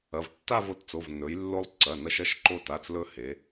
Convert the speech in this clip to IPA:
ɐ˩˧˩ v tː a˥˧ v o˧ t t͡s o˩˧˩ v n ɵ˩˧ j lː o˧ lˠ ǀ ɐ˩˧˩ n ɐ˧ ʃ ɐ˥˧ ʃ ǃ o˧ t a˩˧˩ t͡s l ɵ˧ h e˩˧

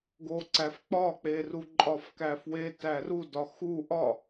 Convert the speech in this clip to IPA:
ɡ o ǀ æ f k͡p ɒ k͡p e r u ǃʼ ɒ f k æ f w e t æ r u d ɒ x u ʔ ɒ

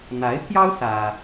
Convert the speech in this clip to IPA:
n̪ a˧˥ ɪ̯ pʰ j ɑ˥ ʊ̯ s ä˥

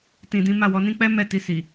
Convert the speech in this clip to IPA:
t ĩ˨ d ĩ˨˦ m a˦˨ w ɔ˨˦ n ĩ˦ k͡p ɛ˦ m ɛ˦˨ t i˧ s i˨

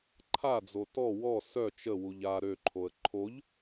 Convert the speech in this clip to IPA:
ǃʰ a d͡z o t ɔ w ɔ s œ t͡ʃ ə w u ʎ a ɾ ø ǃʰ o ə̯ ǃʰ o ʎ

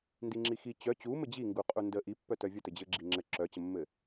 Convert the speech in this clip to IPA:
n d i ŋ͡ǁ i x i t͡ɕ œ t͡ɕ u m ɘ d͡ʑ i ŋ ɡ u qʼ u n d ə ʔ i pː œ t œ vʲ ə t ɘ d͡ʑ ɘ ɡ͡ǁ i ŋ͡ǁ ɘ ǁ œ t͡ɕ ə mː ɘ

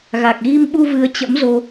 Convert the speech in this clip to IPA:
ɣ a˨˩ k̚ ɣ i˧ m ɓ u˧ v ɨ˨˦ ə̯ t͡ɕ ə̰˧˥ m z o˧

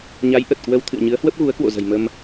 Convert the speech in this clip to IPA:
ɲ a˨˦ j ʔ ə˨˩ t̚ k w ə˧ w t̪ʰ ɨ̰˧˨ ə̯ ɲ ɨ˨˦ ə̯ h w ə˦˥ p̚ ɣ u˨˦ ə̯ k w o̰˧˨ z ə̤˨˩ j m ə˧ m

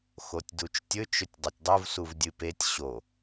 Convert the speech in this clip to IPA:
x o tʲ d u t͡ʃ tʲ ɵ t͡ʃ ɵ tʲ dˤ e tʲ dˤ u v s u v dʲ ɨ p e tʲ ɕ o

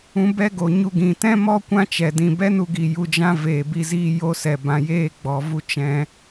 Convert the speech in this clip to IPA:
ũ˧ b ɛ˦ ɡ o˨ ɲ u˧ ɡ ĩ˨ t ɛ̃˦ m ɔ˦ kʷ ã˦ t͡ʃ ɛ˨ d ĩ˨ b ɛ˦ n u˧ ɡ i˨ j u˧ d͡ʒ ã˦ v eː˨ b i˧ z iː˧ j o˧ s ɛ˨ b ã˨ j eː˧ ɡ͡b ɔ˨ v u˧ t͡ʃ ɛ̃˧

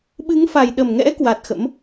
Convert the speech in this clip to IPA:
ɓ ɨ˨˦ ŋ f a˨˩ j ɗ ə˨˩ m ŋ ɛ̰˧˥ k w a˨˩ t̚ x ə̰˧˥ m

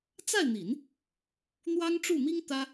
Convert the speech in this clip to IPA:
t͡s a˥˩ ɪ̯ n̪ i˨˩˦ n | n̪ w ɑ˥ ŋ ʈ͡ʂ u˥˩ m i˥ ŋ t̪ ä˥

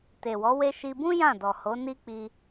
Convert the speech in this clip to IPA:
t e˨ w ɔ˨˦ w e˧ ʃ i˧ b ũ˦ j ã˦˨ d ɔ˨ h o˨˦ n i˦ k͡p i˧

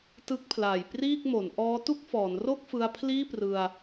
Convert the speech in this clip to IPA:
t ɯ˦˥ k̚ pʰ l aː˨˩ j p r iː˥˩ k̚ m o˩˦ n ʔ ɔː˦˥ t u˥˩ k̚ f ɔː˩˦ n r o˥˩ k̚ f ɯ˧ a̯ pʰ l iː˥˩ p r ɯ˧ a̯

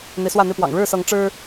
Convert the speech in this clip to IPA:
n̪ i˨˦ s w ä˥˨ n̪ i˥˨ p w ɑ̰˨˩ ŋ ɻ ɻ̩˥˨ s ɤ˨˦ ŋ ʈ͡ʂ ɻ̩˦

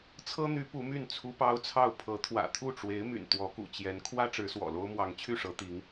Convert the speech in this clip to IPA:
t͡sʰ ɤ˥ n̪ y˧˥ p u˧˥ m y˥˩ n t͡sʰ u˥ p ɑ˥ ʊ̯ t͡sʰ ɑ˥˩ ʊ̯ pʰ ɤ˧˥ t̪ʰ w ä̰˨˩ t̪ʰ u˥˩ ʈ͡ʂ w e˧˥ ɪ̯ m y̰˨˩ n t̪ w ɔ˧˥ k ṵ˨˩ t͡ɕ j ɛ˧˥ n kʰ w ä˥ ʈ͡ʂ ɻ̩˧˥ s w ɔ̰˨˩ l o˥ ʊ̯ m w ɑ˧˥ ŋ t͡ɕʰ y˥˩ ʂ ɤ˧˥ t̪ i˧˥ ŋ

